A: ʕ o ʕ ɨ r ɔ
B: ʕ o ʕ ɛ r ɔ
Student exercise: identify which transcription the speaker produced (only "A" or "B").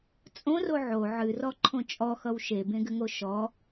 A